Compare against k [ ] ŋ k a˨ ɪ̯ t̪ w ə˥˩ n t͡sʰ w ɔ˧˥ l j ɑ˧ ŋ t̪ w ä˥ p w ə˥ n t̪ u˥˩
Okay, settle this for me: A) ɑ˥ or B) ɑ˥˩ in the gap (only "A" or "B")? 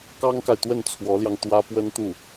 A